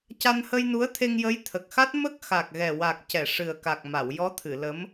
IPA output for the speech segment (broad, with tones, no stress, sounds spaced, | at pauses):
c a˧ n h ə˧ j n u˧˥ ə̯ t̪ʰ e˧ ŋ j ə˧˥ j t̪ʰ ə˨˩ k̚ x a˦˥ t̚ m ə˦˥ k̚ x a˨˩ k̚ ɣ ɛ˨˩ w a˨˩ k̚ c ɛ˨˩˨ ʂ ɨ˨˩ ə̯ k a˨˩ k̚ m a˨˩˨ w j ɔ˧˥ t̪ʰ ɨ˨˩˨ l ə˧˥ m